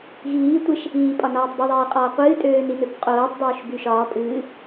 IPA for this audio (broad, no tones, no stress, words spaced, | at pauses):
ɣiːtʷeʃ | iːpʼɒnɒːtˤ beðˤeːqʼɒː qʷɨːtʼøːninøb qʼoːtˤdˤoːʃby ʃɒː pʼɨː